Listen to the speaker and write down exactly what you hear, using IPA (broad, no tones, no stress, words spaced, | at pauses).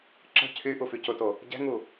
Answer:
ǁə̤ cʰy ʔufycʊto | ɟɛ̤ŋu